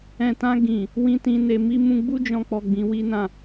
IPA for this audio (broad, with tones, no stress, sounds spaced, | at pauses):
ɛ̃˨ t ã˧ ɡ ĩ˨ | w ĩ˧ t ĩ˧ n e˧ m i˧ m ũ˧ ɡ͡b u˦ d͡ʒ ɔ̃˧ k͡p ɔ˨ ɡ͡b ĩ˨˦ w i˦ n ã˦˨